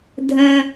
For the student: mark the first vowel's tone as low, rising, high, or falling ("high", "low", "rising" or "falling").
high